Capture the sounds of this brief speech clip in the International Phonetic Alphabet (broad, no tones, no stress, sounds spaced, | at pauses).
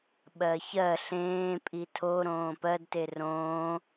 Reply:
ɓ ɜ ç ɜ ɬ ẽː pʼ i tʰ o ɾ õː p ɜ d t e r õː